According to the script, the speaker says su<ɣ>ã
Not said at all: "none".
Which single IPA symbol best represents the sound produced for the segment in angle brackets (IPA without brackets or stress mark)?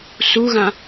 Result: ɣ